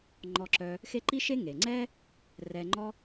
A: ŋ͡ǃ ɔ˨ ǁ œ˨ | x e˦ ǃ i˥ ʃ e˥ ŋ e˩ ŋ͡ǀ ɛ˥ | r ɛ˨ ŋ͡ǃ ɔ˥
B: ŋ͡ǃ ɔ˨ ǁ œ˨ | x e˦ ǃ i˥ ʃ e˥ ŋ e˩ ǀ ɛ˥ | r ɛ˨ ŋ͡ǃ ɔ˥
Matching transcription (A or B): A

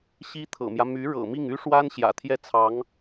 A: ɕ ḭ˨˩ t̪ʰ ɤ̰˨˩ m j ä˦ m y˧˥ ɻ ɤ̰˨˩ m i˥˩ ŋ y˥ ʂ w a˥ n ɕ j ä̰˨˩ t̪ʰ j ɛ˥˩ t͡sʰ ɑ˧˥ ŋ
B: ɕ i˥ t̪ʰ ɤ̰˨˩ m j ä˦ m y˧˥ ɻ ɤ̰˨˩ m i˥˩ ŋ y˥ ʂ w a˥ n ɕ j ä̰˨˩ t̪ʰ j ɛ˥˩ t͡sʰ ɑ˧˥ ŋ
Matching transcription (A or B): B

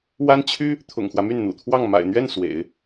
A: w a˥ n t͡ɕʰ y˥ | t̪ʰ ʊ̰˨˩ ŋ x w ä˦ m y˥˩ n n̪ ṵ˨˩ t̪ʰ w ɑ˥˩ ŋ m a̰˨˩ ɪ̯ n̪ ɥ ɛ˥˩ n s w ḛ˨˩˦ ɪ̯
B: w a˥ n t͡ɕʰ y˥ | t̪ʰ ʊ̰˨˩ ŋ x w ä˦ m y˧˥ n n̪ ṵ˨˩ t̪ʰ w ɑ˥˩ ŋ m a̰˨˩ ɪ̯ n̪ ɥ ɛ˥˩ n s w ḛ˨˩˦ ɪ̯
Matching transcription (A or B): A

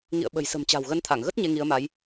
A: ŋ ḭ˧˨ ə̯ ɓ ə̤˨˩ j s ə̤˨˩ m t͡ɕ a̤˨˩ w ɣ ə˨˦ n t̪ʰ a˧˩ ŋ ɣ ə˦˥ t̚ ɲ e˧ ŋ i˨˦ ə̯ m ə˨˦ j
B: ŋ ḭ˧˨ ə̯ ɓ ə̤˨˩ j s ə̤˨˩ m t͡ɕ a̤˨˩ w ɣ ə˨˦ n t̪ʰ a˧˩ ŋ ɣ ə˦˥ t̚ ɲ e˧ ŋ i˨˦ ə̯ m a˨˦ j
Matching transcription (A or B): B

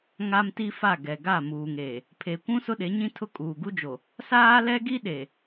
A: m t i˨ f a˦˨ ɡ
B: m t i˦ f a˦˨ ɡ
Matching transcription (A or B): B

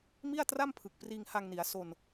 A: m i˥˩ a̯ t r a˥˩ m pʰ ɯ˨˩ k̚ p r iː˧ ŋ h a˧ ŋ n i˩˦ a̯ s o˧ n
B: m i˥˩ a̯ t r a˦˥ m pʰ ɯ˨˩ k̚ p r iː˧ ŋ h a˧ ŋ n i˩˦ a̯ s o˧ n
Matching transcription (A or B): A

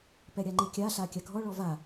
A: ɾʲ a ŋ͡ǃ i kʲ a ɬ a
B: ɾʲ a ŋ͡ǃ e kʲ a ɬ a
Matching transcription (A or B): A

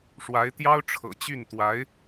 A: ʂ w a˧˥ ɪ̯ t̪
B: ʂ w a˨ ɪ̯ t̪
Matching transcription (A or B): A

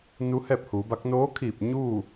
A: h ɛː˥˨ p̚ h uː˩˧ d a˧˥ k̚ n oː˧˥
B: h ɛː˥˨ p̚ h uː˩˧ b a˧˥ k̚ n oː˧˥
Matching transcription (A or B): B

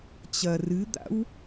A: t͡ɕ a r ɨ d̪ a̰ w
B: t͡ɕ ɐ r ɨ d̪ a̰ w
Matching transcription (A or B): B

